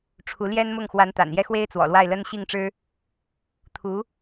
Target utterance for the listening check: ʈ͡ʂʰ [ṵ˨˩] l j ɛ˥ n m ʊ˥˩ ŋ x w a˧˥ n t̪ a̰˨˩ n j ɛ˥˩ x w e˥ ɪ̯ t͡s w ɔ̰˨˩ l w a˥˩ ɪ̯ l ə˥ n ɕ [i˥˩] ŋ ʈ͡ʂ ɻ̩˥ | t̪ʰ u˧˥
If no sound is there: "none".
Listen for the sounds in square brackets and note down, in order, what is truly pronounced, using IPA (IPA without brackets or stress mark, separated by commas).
u˧˥, i˥˩